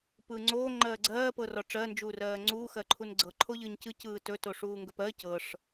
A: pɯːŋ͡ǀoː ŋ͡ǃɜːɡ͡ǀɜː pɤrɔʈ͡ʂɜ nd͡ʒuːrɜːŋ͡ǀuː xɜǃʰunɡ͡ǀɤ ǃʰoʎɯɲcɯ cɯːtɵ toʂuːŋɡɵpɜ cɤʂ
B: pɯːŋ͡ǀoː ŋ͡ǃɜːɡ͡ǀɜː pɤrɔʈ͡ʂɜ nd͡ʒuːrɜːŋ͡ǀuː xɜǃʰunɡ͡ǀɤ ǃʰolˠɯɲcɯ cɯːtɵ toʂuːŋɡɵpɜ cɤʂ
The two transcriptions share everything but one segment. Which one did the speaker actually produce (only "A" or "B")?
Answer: A